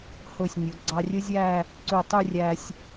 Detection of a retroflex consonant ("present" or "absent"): absent